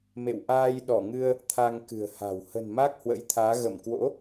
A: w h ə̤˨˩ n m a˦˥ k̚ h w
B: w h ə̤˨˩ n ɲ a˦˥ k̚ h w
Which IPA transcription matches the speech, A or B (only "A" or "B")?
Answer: A